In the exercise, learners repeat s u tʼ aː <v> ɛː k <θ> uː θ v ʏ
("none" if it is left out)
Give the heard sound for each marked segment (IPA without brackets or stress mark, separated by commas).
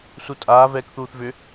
v, θ